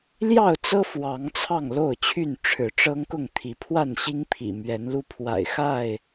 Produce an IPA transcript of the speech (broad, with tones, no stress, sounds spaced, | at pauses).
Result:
l j ɑ˥˨ ʊ̯ t͡s ɤ˦ f w ɑ˨˦ ŋ t͡sʰ ɑ˥˨ ŋ l o˥˨ ʊ̯ t͡ɕʰ y˥˨ n ʈ͡ʂʰ ɻ̩˨˦ ʈ͡ʂ ɤ˦ ŋ k ʊ˥˨ ŋ t̪ʰ i˨˦ pʰ w a˥˨ n ɕ i˦ ŋ pʰ ḭ˨˩ m ɥ ɛ˨˦ n l u˦ pʰ w a̰˨˩ ɪ̯ x a˥˨ ɪ̯